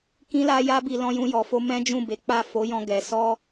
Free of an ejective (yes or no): yes